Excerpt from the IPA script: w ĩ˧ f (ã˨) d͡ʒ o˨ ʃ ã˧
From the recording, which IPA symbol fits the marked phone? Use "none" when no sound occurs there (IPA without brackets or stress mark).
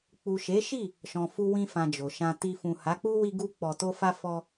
ã˨